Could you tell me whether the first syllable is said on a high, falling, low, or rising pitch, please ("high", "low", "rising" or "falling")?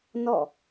falling